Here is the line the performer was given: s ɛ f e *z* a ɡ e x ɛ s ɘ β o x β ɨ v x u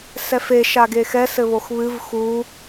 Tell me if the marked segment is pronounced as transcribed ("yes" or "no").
no